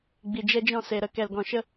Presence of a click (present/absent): absent